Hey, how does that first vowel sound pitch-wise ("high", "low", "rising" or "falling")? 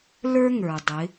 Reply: high